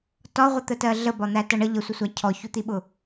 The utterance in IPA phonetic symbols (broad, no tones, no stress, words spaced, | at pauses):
tɒʁʷət̪ətɜ ɮəbɒn̪ætʌ ɳə ʎəsʷəsʷæ cʰɔçut̪iɓʊ